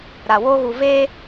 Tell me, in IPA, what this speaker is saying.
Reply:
ɾ a˨ w o˦ ɣ u˨ v e˦

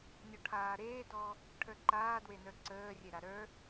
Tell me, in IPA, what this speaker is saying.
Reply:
nʲ ɔ ʈʰ aː ɾ eː d ɔː | ʈʰ ə˞ ǃ aː d w e n ə˞ ǀ əː rʲ e ɾ a ɾ ə˞

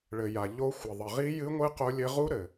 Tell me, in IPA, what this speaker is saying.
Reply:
ɭ ɘ˨ j a˨ ʎ o˦˥ xʷ ɘ˨ ðˤ ɘ˨ ʁ i˦˥ j ɨ˦˥ ŋʷ ɨ˦˥ q o˦˥ lʲ ɘ˦˥ ʁ u˦˥ ɾ ɘ˨

